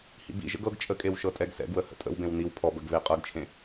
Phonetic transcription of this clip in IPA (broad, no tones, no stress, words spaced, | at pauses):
hḭbḭʒə̰ɡ ɤɡ t͡ʃʼəkʼew ʃɤtʼɛɡsɛ̰ɡwə hə̰tʼə̰wbẽw niw pʰɔbəɡ βeqʼɤɡt͡ʃʰẽ